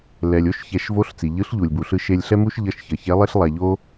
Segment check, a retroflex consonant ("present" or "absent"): absent